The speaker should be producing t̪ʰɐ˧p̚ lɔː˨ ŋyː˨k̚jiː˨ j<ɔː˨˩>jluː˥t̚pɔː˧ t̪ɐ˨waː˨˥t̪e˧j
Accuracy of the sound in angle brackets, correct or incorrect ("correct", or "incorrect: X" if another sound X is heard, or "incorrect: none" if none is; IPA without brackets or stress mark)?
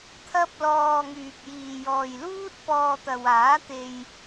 incorrect: ɔː˨